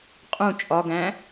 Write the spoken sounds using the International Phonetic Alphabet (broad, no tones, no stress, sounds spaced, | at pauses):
qʼ ũ t͡ʃʼ ɒ ɡ æ̃